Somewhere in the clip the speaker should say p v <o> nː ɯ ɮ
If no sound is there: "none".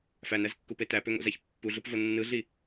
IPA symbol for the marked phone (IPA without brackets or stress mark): o